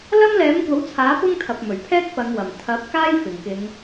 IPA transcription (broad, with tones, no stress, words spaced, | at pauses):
lɐ˥mlɛː˨˥mkʷɐ˨˥wt͡sʰaː˨˥ pʊ˥ŋt̪ʰɐ˨p̚mɵ˨˩ɥpʰɛː˥k̚ pɐ˨˧ŋwɐ˨˩m t̪ʰɐ˨˥p̚ kaː˥jfɪ˨˩ŋkɪ˨˧ŋ